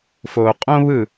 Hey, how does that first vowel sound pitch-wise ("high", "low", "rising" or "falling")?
low